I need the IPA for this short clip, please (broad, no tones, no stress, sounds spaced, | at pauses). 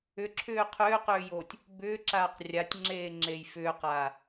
ʏ ǁʰ ʏː qʰ ʏː q ʏː j oː tʲ | b ʏː ǁ aː q rʲ a tʲ ŋ͡ǁ eː ŋ͡ǁ e j f ʏː q aː